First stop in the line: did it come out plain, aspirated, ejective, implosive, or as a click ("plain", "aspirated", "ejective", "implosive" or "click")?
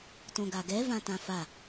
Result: plain